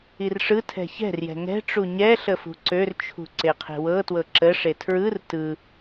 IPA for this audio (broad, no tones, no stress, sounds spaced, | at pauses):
i r ʂ ɯ tʰ ɛ̤ ç ɛ̤ r j ɛ̤ ŋ ɛ̤ ʈ͡ʂ u ɲ ɛ ɬ ə f ṳ ǀ ø r t͡ʃʰ ṳ ǀ e qʰ e̤ w ɤ t w ɤ ǁ ə ʂ e tʰ ɹ ɯ r t ɯ